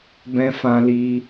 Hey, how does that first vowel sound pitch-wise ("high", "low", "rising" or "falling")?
high